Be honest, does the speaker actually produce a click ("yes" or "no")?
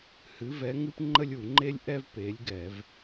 yes